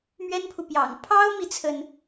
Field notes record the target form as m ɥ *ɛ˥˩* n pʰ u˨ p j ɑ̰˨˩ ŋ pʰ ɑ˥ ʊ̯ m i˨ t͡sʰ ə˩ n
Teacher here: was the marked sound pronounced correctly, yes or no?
no